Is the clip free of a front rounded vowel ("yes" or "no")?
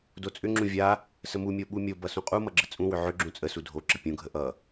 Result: no